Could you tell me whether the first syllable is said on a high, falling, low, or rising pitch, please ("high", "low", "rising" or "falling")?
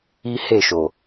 high